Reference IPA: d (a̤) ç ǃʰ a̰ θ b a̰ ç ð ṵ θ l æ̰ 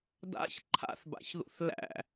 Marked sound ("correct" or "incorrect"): incorrect